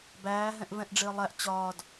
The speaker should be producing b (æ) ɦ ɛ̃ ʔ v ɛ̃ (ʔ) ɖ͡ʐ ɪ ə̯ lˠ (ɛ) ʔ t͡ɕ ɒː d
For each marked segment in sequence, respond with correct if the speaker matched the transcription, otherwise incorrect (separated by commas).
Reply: incorrect, correct, incorrect